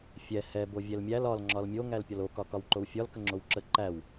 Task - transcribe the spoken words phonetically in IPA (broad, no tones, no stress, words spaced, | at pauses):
fʲɛ hɛ bovʲɛlmʲæl ɒl ŋ͡ǁɒlmʲo ŋælpʲɒlo kɒkɒwǃowfʲɒl kəŋ͡ǁowǁə ǃæw